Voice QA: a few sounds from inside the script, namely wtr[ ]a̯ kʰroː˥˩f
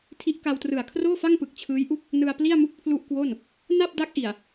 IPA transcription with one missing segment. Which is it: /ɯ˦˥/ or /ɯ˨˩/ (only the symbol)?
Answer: ɯ˨˩